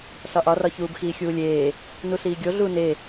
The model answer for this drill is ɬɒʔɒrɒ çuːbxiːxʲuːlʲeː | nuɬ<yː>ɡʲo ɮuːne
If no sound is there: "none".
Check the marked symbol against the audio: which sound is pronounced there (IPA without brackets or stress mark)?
iː